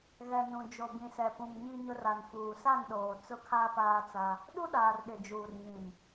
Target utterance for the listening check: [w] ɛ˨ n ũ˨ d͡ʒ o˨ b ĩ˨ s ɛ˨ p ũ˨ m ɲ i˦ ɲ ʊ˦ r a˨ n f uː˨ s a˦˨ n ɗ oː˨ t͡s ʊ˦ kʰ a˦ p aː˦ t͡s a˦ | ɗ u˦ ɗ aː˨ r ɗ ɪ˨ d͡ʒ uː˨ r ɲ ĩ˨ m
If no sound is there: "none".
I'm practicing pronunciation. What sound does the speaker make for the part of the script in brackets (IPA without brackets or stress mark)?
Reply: ɣ